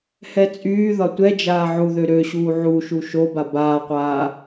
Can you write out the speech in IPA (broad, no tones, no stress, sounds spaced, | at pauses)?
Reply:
h ɛ t͡sʼ yː ð ɒ tʷ ɛ d͡ʒ aː ʕ u ð ø ɾ ø ɕ uː ʕ u ʃ u ʃ o b a b aː qʷ aː